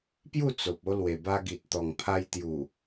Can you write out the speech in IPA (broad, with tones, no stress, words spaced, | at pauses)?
pju˥˧t͡so˨p̚o˧ lwe˨˩ba˧ɡi˨t̚ t̪ɔ˨˩ŋpʰa˧j t̪ju˨˩